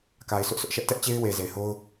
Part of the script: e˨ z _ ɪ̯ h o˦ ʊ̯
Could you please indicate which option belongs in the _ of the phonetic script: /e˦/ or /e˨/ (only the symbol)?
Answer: e˨